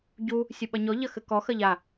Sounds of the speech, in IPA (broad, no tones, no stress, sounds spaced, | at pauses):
ɟ u | sʲ ɘ ɓ ɐ ɲ ɔ ʎ ɐ x ɘ k ɔ x ɐ ʎ a